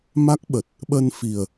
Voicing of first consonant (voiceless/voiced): voiced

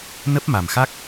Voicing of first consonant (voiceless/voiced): voiced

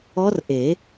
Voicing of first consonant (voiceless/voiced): voiced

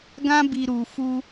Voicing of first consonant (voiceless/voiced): voiced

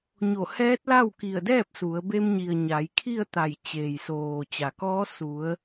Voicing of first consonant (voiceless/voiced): voiced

